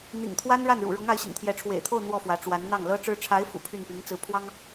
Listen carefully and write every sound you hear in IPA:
n̪ ḭ˨˩ ŋ t̪ʰ w a˥ n ɻ a˥˩ n ɻ ṵ˨˩ ɻ ʊ˧˥ ŋ a˧˥ ɪ̯ ɕ ḭ˨˩ ŋ t̪ʰ j ɛ˧˥ ʈ͡ʂʰ w ḛ˨˩ ɪ̯ t̪ʰ o˥˧ ʊ̯ n̪ w ɔ˥˩ f w ä˧˥ ʈ͡ʂ w a˧˥ n n̪ ɑ˥˩ ŋ l ɤ˥ ʈ͡ʂ ɻ̩˥ ʈ͡ʂʰ a˧˥ ɪ̯ f ṵ˨˩ pʰ y˥˩ n p i˧˥ ŋ t͡s ɹ̩˧˥ pʰ w ɑ˥ ŋ

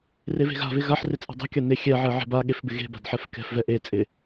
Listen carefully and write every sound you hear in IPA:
r e v e̤ ɣ a̤ v ɪ ɣ a ħ r ɪ t͡sʼ ɛ̤ dˤ ɛ̤ kʲ a n e xʲ ɛ ʕ ɛ ʕ e̤ b a ɠ e f b ɪ ɣ e̤ b a̤ d ħ ɛ f k ɛ̤ f v ɛ ʔ e t͡sʼ ɪ

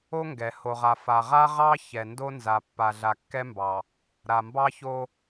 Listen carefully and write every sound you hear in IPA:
o˦ ŋ ɡ ɛ˨ h o˨ ʁ a˨ f a˨ ʁ a˦ ʁ ɑ˦ ç ɛ˨ n d o˦ n z a˨ pː a˨ ɮ a˨ kː ɛ˦ m b ɑ˨ | ɾ a˨ m b ɑ˦ ç o˦

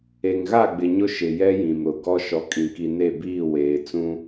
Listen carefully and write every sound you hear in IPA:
e˨ ŋ ɣ a˦˨ ɡ͡b ɪ˨ ɲ ʊ˦ ʃ ɪ˨ j ɛ˦ j ĩ˨ m ɾ ʊ˨ ɡ ɔ˦ ʃ ɔ˨ kʼ ĩ˨ k i˨ n e˦˨ b iː˦˨ w eː˨ t͡s ũ˦

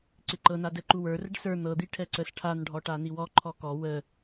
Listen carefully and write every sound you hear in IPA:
ǀ ɪ ǃ ɤ n a d ɛ ǃ u w ə˞ r ə ɖ s ə˞ n̪ ɤ d̪ i ʈʰ ɛ ǀ ə s ʈʰ a n ɖʱ ɔ ʈ a n i w ɔ ǃʰ ɔ k ɔ w ə

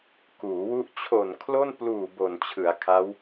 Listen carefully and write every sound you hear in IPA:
k uː˩˦ w u˥˩ ʔ t͡ɕʰ o˨˩ n kʰ l o˥˩ n p l uː˨˩ b o˨˩ n t͡ɕʰ ɯ˩˦ a̯ kʰ a˦˥ w

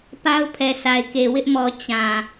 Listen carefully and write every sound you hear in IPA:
p a˦ ʊ̯ pʰ ɛ˨ sʰ a˨ ɪ̯ k e˨ w ɪ˦ ʔ m ɔ˨ t͡ɕ ã˨

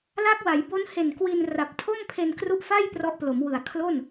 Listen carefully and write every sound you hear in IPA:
l a˦˥ k̚ w a˩˦ j b o˦˥ n h e˨˩ n k w i˧ n r a˨˩ p̚ tʰ o˥˩ m pʰ e˧ n k r u˦˥ ʔ f a˥˩ j p r ɔ˦˥ ʔ p l o˩˦ m w ɯ˨˩ a̯ kʰ l o˥˩ n

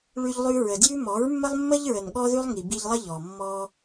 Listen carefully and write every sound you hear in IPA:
ɭ ʉ˦ ʎ lˠ ʉ˦ ɹ ə˨ d j ʉ˦ m ɔ˨˦ ɹ mː ə˦ lˠ mː ə˦ ʎ ɹ ə˨ n ɠ ɔ˦ ð ʉ˦ lˠ ŋ i˨ b i˧ ʎ lˠ ə˦ ʎ ɔ˨ mː ɔ˦

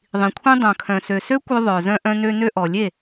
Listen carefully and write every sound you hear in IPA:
ðˤ ĩ˨ kʷʰ ĩ˦ dˤ œ̃˨ kʰ œ̃˨ s ø˨ s ø˦ kʷ œ˧ ðˤ œ˨ z œ̃˧ ʔ œ̃˧ n ø˧ n ø˧ ʔ ɔ˨ lʲ e˦˨

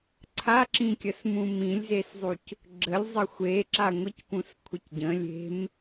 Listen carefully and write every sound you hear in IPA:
ǀʰ a ǁ ĩ kʲ ə s m ũ m ĩ lʲ z e s zˤ u c | ɡ͡ǁ ə lʲ zˤ ə xʷ e ǁ a ŋʷ i c p ũ s kʷʰ ə c ɟ ə̃ lʲ e̤ m

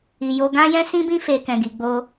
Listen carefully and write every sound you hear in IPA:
i˨ j o˧ ɡ ã˦ j ɛ̃˦ s ĩ˦ b ĩ˦ f e˧ k ɛ̃˨ ɡ i˨ ɡ͡b o˧

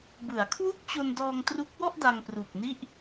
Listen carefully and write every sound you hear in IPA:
b ɯ˩˦ a̯ kʰ w u˥˩ k̚ t͡ɕ o˧ n d ɔː˧ ŋ t r u˦˥ k̚ w ɔ˥˩ ʔ d a˧ ŋ p r u˨˩ k̚ n i˥˩ ʔ

